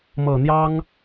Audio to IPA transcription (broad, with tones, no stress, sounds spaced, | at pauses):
m ɤ˨˩ n̪ j ɑ˥ ŋ